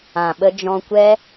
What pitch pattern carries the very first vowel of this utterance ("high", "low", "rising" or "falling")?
low